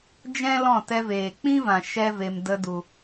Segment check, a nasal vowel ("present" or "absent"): present